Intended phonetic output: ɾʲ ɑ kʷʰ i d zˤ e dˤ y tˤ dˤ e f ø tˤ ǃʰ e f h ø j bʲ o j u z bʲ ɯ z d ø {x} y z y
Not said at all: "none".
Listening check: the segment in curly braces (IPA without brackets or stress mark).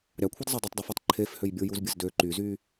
ǃ